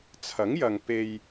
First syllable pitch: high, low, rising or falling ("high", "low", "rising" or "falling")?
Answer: rising